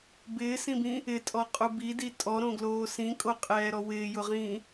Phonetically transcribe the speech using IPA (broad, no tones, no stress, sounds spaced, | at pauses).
b ɪː s ĩ b ĩ | ɪ tʼ ɔ qʼ u b i d i tʼ ɔ ɾ õ ɡ l oː s ĩ kʼ o qʼ ɛː ɾ ɔ w ɪː j ʊ ʁ ĩː